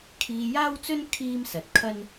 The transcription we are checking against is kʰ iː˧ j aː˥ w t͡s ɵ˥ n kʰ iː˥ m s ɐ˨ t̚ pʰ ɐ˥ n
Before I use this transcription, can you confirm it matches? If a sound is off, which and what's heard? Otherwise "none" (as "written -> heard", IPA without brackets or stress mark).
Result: pʰ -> kʰ